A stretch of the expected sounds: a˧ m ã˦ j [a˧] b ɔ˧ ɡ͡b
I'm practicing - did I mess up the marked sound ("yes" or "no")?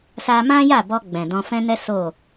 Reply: yes